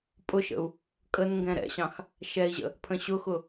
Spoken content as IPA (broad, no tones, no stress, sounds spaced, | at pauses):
pʼ ʊ ʃ ə̰ u̯ | kʼ ə n ŋ ɡ ɛ̃ ɾ ɛ̰ ɕ ɑ̃ x | ʃ ɛ i̯ ʑ ə̰ | pʰ ə̃ ɕ ʊ x ʊ